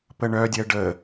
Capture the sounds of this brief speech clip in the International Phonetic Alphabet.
p ə ɳ œ dʲ ɜ ɖ ə

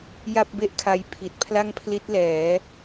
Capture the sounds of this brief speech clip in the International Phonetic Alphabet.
j a˥˩ p̚ b e˥˩ ʔ kʰ a˧ j pʰ i˨˩ t̚ pʰ l a˥˩ ŋ pʰ l i˦˥ t̚ l ɛː˩˦

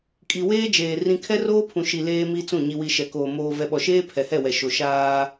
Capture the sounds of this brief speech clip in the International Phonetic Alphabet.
kʼ i˨ w eː˦ d͡ʒ eː˨ r ĩ˨ kʰ ɛ˦ r oː˦ pʰ ũ˨ ʃ i˨ l eː˦ m i˦ t͡s ũ˦˨ ɲ i˨ w i˨ ʃ ɛ˨ k oː˨ m oː˨ v ɛ˨ ɓ ɔ˨ ʃ eː˦ pʰ ɛ˨ h ɛ˦˨ w ɛ˨ ʃ o˨ ʃ aː˦

